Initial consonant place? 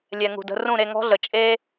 alveolar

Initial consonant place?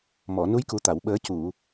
labial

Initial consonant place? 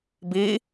labial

